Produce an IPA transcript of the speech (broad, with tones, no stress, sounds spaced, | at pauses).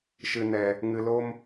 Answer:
ʃ ɨ˨ n ɛ˨ | ŋ ɨ˨ l o˦ m